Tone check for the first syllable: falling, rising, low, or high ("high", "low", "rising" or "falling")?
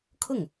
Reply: falling